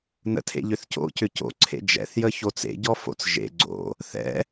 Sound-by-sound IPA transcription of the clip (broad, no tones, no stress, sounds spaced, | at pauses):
n ə̰ tʰ ḛ ʎ ʏ θ c o̰ c ʏ c o̰ ǀʰ ḛ d͡ʒ ɛ̰ θ j ə ç o t͡s ḛ ɟ ɔ f o̰ t͡s ʒ ḛ ɡ͡ǀ o̰ | θ ɛ̰